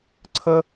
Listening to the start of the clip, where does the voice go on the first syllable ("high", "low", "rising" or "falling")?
high